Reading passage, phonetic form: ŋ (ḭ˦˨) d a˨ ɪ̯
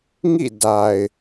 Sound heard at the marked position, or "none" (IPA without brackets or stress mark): ḭ˦˨